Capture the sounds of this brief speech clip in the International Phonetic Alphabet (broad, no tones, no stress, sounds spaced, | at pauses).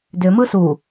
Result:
d ʏ m ɯ s u